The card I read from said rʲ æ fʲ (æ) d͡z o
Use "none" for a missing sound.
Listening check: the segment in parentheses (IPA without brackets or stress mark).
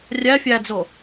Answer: æ